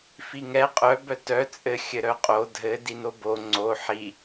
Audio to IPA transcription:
fiŋɛ qʼœ bœtœ t͡sʼɘ xʲɘɾœqʼo dʱɘ dinobo ŋ͡ǀo ħi

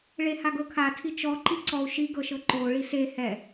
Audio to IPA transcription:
ɭehaɡɤkʰa tʰit͡ʃɔ ǃiǀɔu̯ ʃi ɡɤʃɤǃo ɭise hɛ

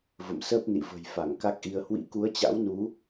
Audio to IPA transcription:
və̰˧˨msəː˦˥p̚nḭ˧˨ və̤˨˩j fa˧˩ŋka˦˥k̚ʔi˧ə̯ hwḭ˧˥ku˨˦ə̯t͡ɕa̰˧˥wnu˨˦

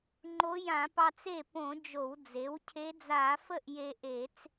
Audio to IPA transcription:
ŋ͡ǃo˧˥jã˧˩˧pɑ˧t͡s e˥˩põ˧˩˧ d͡ʒo˧˩˧wd͡ze˩˥wcʰe˧˥ d͡za˧˩˧fə˥˩ʔ je˧ʔe˧˩˧t͡s

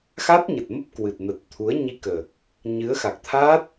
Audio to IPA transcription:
xa˦˥t̚ ɲə˨˩t̚mə˦˥p̚ kwɨ˨˩t̚nə˨˩t̚ t̪ʰu˨˦ə̯ ɲi˧kəː˨˩k̚ | ɲɨ˨˦ə̯xa˨˩k̚ t̪ʰaː˦˥t̚

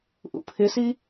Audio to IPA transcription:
ʔṵpʰɪsi

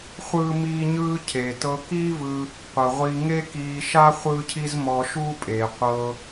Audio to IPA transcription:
χʷɯ˥miː˥ ɲɯː˥cʰe˩ tɤ˧kiː˥vɯː˧ | qʷɯ˩ʁʷi˧ŋe˥ kiː˧ʃa˥ χʷɯː˥cʰi˥zmɔ˧ ʃuː˥pʼe˩ qʷɤː˧

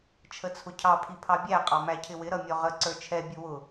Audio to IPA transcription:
t͡ʃʰət͡sʰʊcʰɑ pʰipʰɑbʲæ qʼɑmæcʰɪwɪ ɾʌmʲɔʁə ǀə˞t͡ʃʰɛ bʲʊwʊ

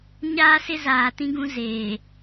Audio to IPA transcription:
ɲaː˦sɪ˦zaː˨ tĩ˦ɡũ˦ zeː˨

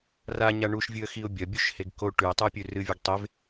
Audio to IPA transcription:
raɲa ɳuʃvʲɨə̯xiʊ̯ bʲɐbʲuʃheɡ ko ʈʉɪ̯tˤɨɪ̯pʲʉ rɨvʲɵɡ tˤev

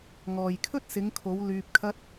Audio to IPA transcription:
ŋɔː˨jkʰɵ˥t̚ sɪ˨˧ŋkʰo˨˧w lyː˧p̚kʰɐ˥t̚

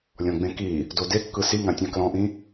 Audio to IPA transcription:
lʲɔ̃ɡ͡bẽki | dodekːɯ siŋãtʲã klɔ̃ʔĩ

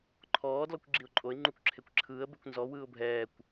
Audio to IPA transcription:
ǃʰɔː dlɔkʷɡ͡ǁiʊ̯ǃʼoɪ̯ ŋ͡ǃukʷǁʰekʷǁʰɯːə̯ bekʷnzɔ wɯːʊ̯bʱɛːkʷ

